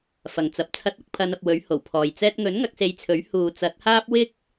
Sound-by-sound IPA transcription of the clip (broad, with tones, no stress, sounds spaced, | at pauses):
f ɐ˨ ŋ t͡s ɐ˨˥ p̚ t͡sʰ ɐ˧ t̚ ɐ˧ k̚ pʰ ɐ˨˧ n ɐ˨ p̚ w ɵ˨˥ ɥ h o˨˩ w pʰ ɔː˨ j t͡s ɛː˧ t̚ ŋ ɵ˨˥ n ŋ ɐ˨˥ k̚ s e˧ j t͡sʰ ɵ˨˥ ɥ h uː˨ t͡s ɐ˨˥ t̚ h aː˥ p̚ w ɪ˥ k̚